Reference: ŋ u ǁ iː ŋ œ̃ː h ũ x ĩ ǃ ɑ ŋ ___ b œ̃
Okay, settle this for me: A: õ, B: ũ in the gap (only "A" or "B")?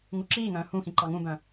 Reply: B